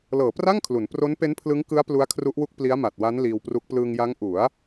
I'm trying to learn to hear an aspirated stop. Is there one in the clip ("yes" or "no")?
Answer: yes